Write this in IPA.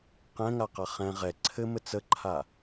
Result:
qɛ̃ŋaqa χɛ̃ ʁɛ ǀʰɘmɘ t͡səǃʰa

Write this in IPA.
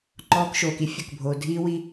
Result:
ŋ͡ǃɔː˧kʃoː˨ki˦ fʲʊ˨kbʱoː˨ dʱiː˧wi˧

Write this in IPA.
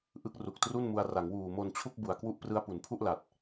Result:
ʔɯ˦˥k̚ru˨˩k̚tru˥˩nmu˧a̯ ra˩˦ŋwuː˨˩mo˧nt͡ɕʰu˥˩k̚ bu˨˩a̯kwu˥˩ʔ prɯ˧a̯pu˩˦npʰu˥˩ʔ la˨˩t̚

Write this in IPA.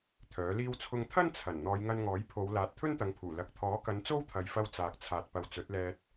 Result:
t̪ʰœː˨˥liː˥w t͡sʰʊ˧ŋ t̪ʰɐ˥nt͡sʰɐ˨˩n n̪ɔː˨˧jŋɐ˧nŋɔː˨˥j pʰo˨˧w laː˨˥t̚t̪ʰɵ˥nt̪ɐ˨˧ŋpʰuː˨˩ lɐ˨k̚t̪ʰɔː˨˥kɐ˨˧n t͡so˥wt̪ʰɐ˨jfɐ˧w t͡saː˨k̚t͡sʰaː˨t̚pɐ˨˧w t͡sɵ˨˥t̚lɛː˧t̚

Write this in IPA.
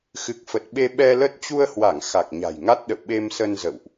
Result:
xɨ˨˩k̚fə˨˩t̚ɓe˧ ɓɛ˧lə˦˥t̚ t͡ɕu˧ə̯hwa˧˩ŋ xa˨˩k̚ɲa̤˨˩jŋa˦˥t̚ɗə̰˧˨w ɓe˧msə˧nzə̰˧˨wʔ

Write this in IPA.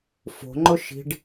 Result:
fo̤ŋ͡ǃʊ ʃi̤ɖ

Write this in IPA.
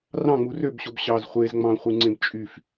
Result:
rɑ̃ŋ͡mu røbɕob ɕɑz χʷez ŋ͡mɑ̃χʷɯŋ͡ǀẽb t͡ʃʼyf

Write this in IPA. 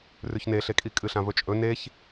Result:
rʉçneɬekʼi kʼɨɬãvɵt͡ʃʼɵ neç

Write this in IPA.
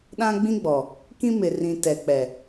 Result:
ɗã˦ɡ͡bĩ˦ɡ͡bɔ˨ | kĩ˦mɪ˨rĩ˨ tɛ˨k͡pɛ˨

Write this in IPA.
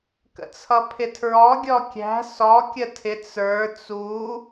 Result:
kə̰t͡sʰʌpʰɪtʰɹɔ ɡʲɔkʲæ̤ sɔ kʲətʰɪ t͡sə˞ t͡su

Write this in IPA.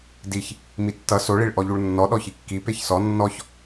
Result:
diç | mitːʌ so ɭiɭʔɔʎuɭnːɔ ɗɔçikːi peçsɔ nːɔç

